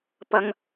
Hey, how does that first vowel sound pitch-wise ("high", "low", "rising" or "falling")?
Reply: high